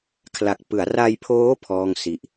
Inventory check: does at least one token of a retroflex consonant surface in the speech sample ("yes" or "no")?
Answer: no